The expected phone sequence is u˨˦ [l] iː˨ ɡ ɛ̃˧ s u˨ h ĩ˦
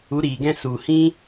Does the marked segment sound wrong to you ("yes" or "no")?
yes